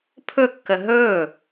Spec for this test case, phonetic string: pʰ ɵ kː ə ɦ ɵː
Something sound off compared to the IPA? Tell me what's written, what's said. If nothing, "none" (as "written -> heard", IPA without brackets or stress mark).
none